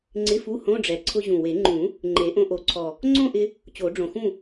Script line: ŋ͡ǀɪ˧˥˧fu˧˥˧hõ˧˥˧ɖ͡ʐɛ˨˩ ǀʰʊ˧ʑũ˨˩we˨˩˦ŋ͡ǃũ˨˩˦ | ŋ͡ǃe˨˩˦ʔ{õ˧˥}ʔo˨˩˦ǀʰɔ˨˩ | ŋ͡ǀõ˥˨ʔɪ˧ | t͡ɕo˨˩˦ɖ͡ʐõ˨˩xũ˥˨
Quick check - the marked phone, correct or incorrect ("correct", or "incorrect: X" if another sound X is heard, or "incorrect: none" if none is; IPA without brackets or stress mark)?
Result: incorrect: õ˧